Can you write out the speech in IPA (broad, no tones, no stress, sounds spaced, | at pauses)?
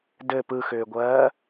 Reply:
d ɘ p ɯ x ʏː ɡʷ ɜː